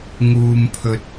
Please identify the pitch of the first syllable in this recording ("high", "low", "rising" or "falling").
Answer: low